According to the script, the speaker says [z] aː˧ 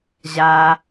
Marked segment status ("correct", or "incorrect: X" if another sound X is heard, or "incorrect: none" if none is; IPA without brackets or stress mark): incorrect: ʑ